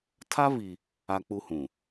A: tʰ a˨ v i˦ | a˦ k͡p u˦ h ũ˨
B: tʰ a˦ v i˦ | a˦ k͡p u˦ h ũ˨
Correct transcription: B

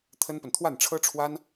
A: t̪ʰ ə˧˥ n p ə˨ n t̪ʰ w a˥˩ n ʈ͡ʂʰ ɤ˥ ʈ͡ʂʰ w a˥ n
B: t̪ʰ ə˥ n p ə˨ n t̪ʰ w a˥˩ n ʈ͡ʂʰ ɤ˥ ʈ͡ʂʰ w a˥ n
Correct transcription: B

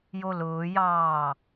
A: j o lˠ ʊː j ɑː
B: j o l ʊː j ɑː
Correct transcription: B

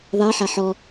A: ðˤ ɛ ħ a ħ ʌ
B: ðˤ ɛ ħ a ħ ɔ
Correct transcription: B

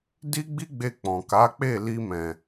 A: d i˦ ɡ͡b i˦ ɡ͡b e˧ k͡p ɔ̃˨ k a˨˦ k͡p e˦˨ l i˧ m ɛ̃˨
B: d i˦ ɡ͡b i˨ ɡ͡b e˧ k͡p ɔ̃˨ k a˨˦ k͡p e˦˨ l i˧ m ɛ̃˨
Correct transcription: A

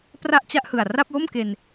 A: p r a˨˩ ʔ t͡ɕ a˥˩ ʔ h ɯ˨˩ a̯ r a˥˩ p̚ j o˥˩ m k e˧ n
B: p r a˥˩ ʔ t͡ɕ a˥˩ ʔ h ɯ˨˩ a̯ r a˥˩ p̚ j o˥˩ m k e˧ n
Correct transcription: B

